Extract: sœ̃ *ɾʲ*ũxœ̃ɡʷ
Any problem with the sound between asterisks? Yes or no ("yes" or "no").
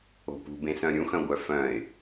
no